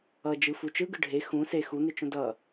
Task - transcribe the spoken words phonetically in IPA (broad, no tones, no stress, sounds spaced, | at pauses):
ʌ d͡ʒ ɯ f u t͡ʃ ɯ ɡ ɯ ɖʱ e x ũ s e x u n̪ e t͡ʃ õ d ʌ